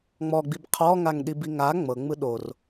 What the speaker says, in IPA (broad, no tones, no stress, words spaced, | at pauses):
ŋ͡mɔɡ͡bib qʰɔŋaŋɗibi ŋa ŋ͡mɤŋ͡mɯ ɗor